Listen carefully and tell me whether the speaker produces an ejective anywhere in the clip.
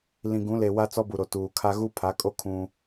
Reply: yes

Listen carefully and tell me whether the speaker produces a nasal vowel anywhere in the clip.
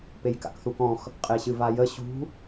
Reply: yes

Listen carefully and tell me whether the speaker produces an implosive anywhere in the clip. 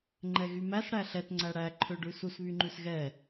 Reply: no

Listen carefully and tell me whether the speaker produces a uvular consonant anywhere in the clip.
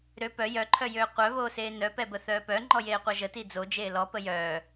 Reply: yes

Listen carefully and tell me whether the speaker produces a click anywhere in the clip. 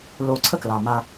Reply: yes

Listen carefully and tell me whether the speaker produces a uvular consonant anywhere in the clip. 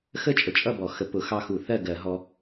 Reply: no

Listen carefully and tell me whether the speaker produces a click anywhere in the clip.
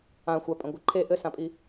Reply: yes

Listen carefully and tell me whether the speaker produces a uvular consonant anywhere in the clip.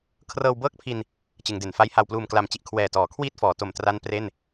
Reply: no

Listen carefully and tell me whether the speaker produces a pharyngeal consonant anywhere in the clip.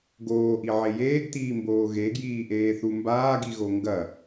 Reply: yes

